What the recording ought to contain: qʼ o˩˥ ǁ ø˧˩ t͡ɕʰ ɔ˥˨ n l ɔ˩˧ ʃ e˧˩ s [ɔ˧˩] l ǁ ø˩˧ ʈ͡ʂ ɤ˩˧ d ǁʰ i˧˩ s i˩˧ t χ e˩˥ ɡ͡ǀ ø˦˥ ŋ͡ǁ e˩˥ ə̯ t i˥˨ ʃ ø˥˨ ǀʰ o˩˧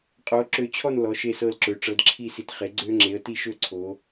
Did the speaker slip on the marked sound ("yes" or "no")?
yes